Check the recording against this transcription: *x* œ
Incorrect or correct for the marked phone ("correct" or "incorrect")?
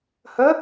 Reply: incorrect